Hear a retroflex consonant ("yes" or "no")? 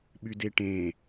yes